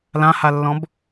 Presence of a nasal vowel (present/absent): present